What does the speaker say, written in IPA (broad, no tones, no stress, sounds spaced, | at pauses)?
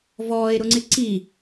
v ɔː e̯ ɾ ʊ ŋ͡ǀ ɪ ǀ i